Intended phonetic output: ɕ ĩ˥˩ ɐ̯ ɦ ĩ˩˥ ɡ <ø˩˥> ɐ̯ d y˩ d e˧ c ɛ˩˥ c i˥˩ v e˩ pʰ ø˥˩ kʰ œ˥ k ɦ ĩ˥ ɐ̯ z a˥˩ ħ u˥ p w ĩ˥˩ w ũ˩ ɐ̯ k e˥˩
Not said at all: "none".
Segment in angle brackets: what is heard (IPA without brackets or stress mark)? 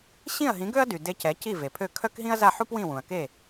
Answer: ø˥